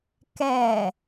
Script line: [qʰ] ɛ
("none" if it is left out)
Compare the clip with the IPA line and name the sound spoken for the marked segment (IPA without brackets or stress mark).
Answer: k